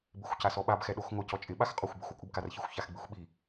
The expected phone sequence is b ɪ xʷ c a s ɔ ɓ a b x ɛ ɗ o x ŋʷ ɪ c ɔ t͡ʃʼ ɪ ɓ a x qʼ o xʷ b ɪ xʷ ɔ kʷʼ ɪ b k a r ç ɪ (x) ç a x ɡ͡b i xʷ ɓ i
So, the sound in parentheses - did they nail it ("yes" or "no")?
no